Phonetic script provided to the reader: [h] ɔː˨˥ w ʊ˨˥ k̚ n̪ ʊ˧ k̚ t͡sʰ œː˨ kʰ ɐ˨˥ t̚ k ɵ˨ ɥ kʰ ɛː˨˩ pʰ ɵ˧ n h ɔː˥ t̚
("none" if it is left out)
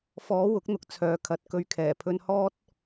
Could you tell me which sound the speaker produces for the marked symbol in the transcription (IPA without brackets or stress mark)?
f